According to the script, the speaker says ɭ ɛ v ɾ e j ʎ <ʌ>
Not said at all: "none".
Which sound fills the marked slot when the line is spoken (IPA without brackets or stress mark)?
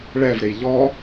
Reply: ɔ